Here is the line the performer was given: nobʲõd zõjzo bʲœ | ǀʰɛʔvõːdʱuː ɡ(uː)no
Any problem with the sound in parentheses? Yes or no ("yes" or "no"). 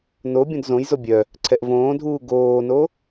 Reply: yes